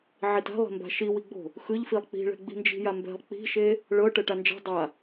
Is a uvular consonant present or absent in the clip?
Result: absent